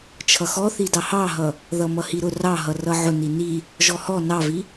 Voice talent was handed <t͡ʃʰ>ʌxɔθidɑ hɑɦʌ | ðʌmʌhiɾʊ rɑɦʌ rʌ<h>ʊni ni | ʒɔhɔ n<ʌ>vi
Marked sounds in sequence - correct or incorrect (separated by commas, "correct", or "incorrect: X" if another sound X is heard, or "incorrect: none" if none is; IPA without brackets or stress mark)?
correct, incorrect: ʕ, incorrect: ɑ